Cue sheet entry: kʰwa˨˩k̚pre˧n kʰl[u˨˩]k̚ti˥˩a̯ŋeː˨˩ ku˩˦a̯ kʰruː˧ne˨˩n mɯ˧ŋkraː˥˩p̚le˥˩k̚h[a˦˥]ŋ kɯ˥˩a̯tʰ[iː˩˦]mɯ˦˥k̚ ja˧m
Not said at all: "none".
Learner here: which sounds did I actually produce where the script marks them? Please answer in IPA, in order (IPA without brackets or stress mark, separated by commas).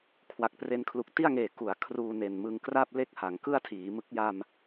u˨˩, a˩˦, iː˩˦